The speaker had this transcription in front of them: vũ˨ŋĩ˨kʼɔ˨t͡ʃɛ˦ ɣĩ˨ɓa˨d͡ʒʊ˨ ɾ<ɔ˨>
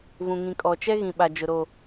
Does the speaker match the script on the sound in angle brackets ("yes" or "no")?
no